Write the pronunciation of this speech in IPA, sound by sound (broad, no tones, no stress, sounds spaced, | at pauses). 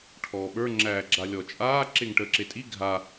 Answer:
ʈʰ ɔː ɓ ə˞ ŋ͡ǁ æː ɡ͡ǁ a lʲ ɔ t͡ʃʼ aː ǁ e ŋ ʈ əː ǁ e tʼ i ɡʱ a